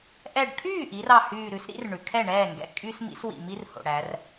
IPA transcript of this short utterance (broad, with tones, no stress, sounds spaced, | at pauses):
ʔ ɛ˧˩ ɖ ʈʰ yː˥˩ ʔ i˩˧ r ɑ˧˩ h yː˧˩ ɾ ʉ˨˥ s ɾ ḭ˨˥ r ɳ ʉ˩ kʰ ɛ˥˩ ɳ ɛː˥˩ ŋ ɡ ɛ̰˨˥ kʼ y˦ s m ḭ˨˥ s w ḭ˩ m i˦ r h o̰˩ ɽ æ˩˧ r